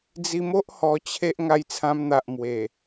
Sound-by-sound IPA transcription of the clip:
d͡z i˧ m o˦ ʔ h ɔ˧ t͡ɕʰ e˦ ʔ ŋ a˧ j t͡sʰ ã˧ m n̪ a˨ ʔ m w e˨˩

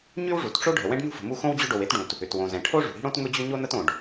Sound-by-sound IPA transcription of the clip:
ɲ y˥ w ʐ u˩ t ʈ͡ʂ o˥ ɖʱ ə˩ w ɛ̃˥ ɖ n ṳ˥ f ə̤˩ m u˥ x õ˥ w d͡ʑ ʊ˥ ɖ o˩ w e˥ t ɖ ũ˩ t | ʏ˩ t w õ˩ z ɛ̃˩ ʈʰ o˥ ʐ ṳ˩ ɽ i̤˥ ɽ õ˥ t ŋ ʊ˥ d͡ʑ ʏ˥ ɲ o˥ n ə˥ t õ˩ ɖ

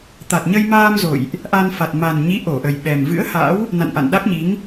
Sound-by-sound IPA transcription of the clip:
t̪ a˨˩ t̚ ɲ ə˧ j m aː˧ m z o̰˧˨ j ʔ | ʔ a˧ n f a˨˩ t̚ m a˨˩ n ɲ i˨˦ ʔ o˧˩ ʔ ə˨˩ j ɓ ɛ˨˩ m v ɨ̰˧˥ ə̯ h a̰˧˥ w | n a̰˧˨ n ʔ a̰˧˨ n ɗ a˦˥ k̚ ɲ i˨˦ ŋ

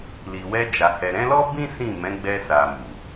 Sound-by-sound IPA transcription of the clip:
l i˨ w ɛ˧ d͡ʒ a˨ h ɛ˨ ɾ ɛ̃˨˦ l ɔ˦ b ĩ˦ s ĩ˦˨ m ɛ̃˨˦ ɡ͡b ɛ˧ s a˨ m u˨

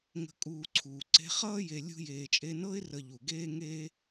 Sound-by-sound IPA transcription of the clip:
ŋ ə̤˨ kʼ uː˨ ǀʰ uː˩ ǀ e̤˦ χ ʌː˥ j e˨ lʲ ṳ˦ j eː˨ t͡ʃʼ e˦ n ɤ˥ ɪ̯ r ə˨ ʎ u˩ ɡ eː˦ ŋ eː˥

